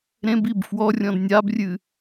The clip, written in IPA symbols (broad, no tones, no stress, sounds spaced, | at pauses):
ɾ ẽ b i b f w ɔ rʲ ɔ̃ d nʲ a b rʲ ɨ